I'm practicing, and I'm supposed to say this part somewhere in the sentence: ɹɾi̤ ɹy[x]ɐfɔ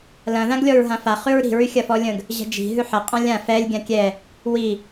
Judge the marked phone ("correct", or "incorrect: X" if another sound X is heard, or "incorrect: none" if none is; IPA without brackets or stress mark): incorrect: xʲ